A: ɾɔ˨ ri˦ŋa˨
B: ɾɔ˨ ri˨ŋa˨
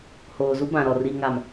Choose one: B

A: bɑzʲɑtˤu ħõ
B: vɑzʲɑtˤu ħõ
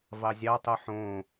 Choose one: B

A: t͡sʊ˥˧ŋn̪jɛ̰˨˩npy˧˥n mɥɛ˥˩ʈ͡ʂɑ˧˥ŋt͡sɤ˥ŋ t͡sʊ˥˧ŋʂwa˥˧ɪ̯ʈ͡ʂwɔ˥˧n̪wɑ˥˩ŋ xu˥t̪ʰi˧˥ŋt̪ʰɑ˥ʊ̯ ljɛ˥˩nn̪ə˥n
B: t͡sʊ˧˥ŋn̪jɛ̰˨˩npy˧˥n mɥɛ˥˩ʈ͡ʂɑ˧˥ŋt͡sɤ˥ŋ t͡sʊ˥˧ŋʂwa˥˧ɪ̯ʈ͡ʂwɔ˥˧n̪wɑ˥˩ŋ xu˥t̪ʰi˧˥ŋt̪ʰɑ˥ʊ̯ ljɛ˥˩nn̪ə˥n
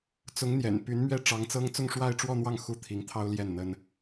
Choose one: B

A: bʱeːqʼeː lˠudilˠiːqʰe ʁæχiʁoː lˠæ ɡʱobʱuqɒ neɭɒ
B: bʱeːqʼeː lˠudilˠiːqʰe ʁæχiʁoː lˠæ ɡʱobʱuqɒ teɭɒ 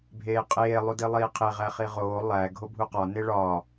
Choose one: A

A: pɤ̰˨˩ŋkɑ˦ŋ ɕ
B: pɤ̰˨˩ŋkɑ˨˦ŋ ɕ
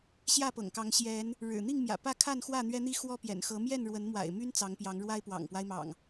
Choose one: B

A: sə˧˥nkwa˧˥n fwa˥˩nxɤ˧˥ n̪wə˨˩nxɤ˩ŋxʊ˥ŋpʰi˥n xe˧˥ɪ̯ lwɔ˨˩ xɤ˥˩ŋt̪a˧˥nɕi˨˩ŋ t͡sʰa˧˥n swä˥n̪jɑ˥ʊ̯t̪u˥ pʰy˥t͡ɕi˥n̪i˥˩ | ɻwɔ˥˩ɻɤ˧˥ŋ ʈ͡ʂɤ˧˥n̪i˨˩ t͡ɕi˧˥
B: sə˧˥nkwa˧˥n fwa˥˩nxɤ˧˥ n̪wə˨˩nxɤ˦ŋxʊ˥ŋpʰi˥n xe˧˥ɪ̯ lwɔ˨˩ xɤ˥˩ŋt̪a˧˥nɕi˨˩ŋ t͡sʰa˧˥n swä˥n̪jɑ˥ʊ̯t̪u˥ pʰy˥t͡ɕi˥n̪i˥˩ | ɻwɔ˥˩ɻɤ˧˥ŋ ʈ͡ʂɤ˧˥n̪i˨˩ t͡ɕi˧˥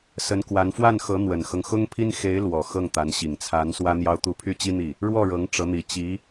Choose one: B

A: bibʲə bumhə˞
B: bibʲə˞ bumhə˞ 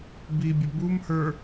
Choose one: A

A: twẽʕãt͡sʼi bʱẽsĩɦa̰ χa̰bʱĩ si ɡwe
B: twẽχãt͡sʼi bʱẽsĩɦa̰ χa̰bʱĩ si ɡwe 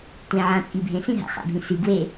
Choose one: A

